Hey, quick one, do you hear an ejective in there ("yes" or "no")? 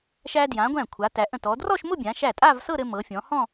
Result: yes